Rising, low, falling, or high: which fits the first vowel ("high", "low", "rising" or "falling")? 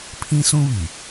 high